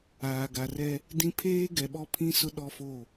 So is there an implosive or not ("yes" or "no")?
yes